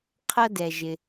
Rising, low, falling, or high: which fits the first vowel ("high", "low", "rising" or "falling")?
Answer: high